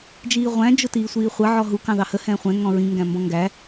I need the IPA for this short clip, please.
d͡ʒ iː ʁʷ æ̃ d͡ʒ ʊ t iː sʷ iː χʷ ə ʕ ɔ ɦ u k ɑ̃ ð ɑ h ə h ɛ̃ː χʷ ɛ̃ ŋ ɔ̃ ɹ ĩ ŋ ɡ æ̃ m b ɔ̃ ŋ ɡ æ

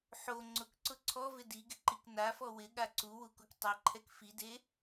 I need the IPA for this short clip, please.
ħ o ŋ͡ǀ ʊ k ǀ ʊ ǀʰ ɔ v ɪ d i ɡ ɪ ǃ i k n a f ɔ w ɪ ɠ a ǀ u w u k u k tˤ e ǃʰ ɛ k f i d e

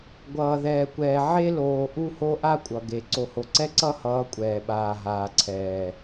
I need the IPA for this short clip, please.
ɡʷ ʌː˨ ð ɛː˨ kʷ ɛː˨ ʕ e˦ l oː˨ ʔ u˦ h o˦ ʔ a˦ kʷʼ ʌ˨ ɡ e˨ ǀ o˨ h o˨ ǀ ɛ˦ ǀ ʌ˦ h ʌː˨˦ kʷʼ ɛː˨ ɓ aː˨ ɦ aː˨ ǀʰ ɛː˨

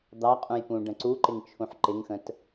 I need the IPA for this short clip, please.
d̪ ɑ qʼ ũ j p ũ ɖ ə̃ ǀ u ǃ ɪ ŋ t͡ʃʰ ũ ħ ǃ ɪ ŋ x ə̃ t

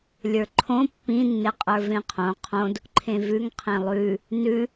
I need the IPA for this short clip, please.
lʲ ə˞ ǃʰ õ pː ĩ nː e qʼ ə˞ v ẽ qʰ õ qʰ õ d | ǃʰ ẽ v ʉ ŋ qʰ ẽ lˠ ʉ | n ʉ

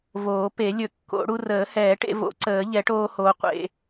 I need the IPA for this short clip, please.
v oː˨˩˦ p e˨˩˦ lʲ ɵ˨˩˦ kː o̰˨˩˦ ɽ u˧ r əː˨˩˦ h ɛː˨˩˦ ʈ ḛ˧ v o̰˨˩˦ ǀ əː˨˩˦ ʎ ɛ˨˩˦ ʈ oː˧ h oː˧ qʷ ḛ˧

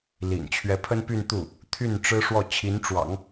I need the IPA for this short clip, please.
l ḭ˨˩ n t͡ɕʰ ɥ ɛ˧˥ pʰ ə˥ n p y˥˧ n t̪ u˥˩ | t̪ʰ y˥˩ n ʈ͡ʂ ɻ̩˥ ʂ w ɔ˥˩ t͡ɕʰ i˧˥ n ʈ͡ʂ w ɑ̰˨˩˦ ŋ

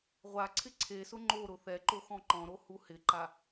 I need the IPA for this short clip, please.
ʁʷ a ǀʰ ɪ ǀʰ e s ʊ ŋ͡ǃ o ɾ ʊ θ ɛ ǃ o x ɔ̃ ǃ ɔ̃ ɾ o h u h ɪ ǃ a

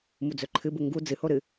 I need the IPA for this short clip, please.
m u d͡z ɵ ǃʰ ɨ b u ŋ ɡ u d͡z ɨ h o ɾ ɨ

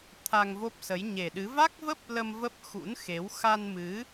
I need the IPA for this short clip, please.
t̪ʰ a˧ ŋ v o˦˥ p̚ s ə˨˦ j ɲ e˨˩ ɗ ɨ˨˦ v a˦˥ k̚ v ə˦˥ p̚ l ə˧ m v ə˦˥ p̚ x ṵ˧˥ n x e˨˦ w x a˧ n m ɨ˨˦

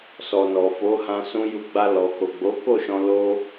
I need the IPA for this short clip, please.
s ɔ˨ n ɔ˨ f o˨˦ h ã˧ s ũ˧ j u˧ ɡ͡b a˧ l ɔ˨ k o˨ ɡ͡b o˨˦ k o˦˨ ʃ ɔ̃˧ l o˦

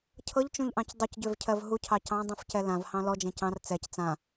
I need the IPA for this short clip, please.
cʰ ɤ ʎ t͡ʃ ũ ʎ ʔ ɑ̃ c dˤ ø c ɟ ø v cʰ ɜ v ɦ u cʰ ɑ c ɑ̃ dˤ ũ f c ɛ l ã v h ɑ̃ l ɔ d͡ʒ ẽ c ɑ̃ r t͡s ɛ c t͡s ã

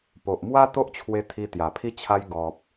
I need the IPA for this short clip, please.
p o˨ ʔ m w a˦ t̪ o˦ ʔ t͡ɕʰ w e˧ t̪ʰ i˧ t̪ j a˨˩ pʰ i˧ t͡ɕʰ a˧ j ɡ ɔ˨ p̚

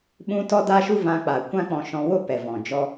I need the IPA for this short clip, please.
ɓ ũ˧ t ɔ˦ d a˦ ʃ u˦ v ã˧ k͡p a˨ kʷ ã˦ k͡p ɔ̃˧ ʃ ɔ̃˧ w o˦ p ɛ˨ v ɔ̃˨ d͡ʒ ɔ˦

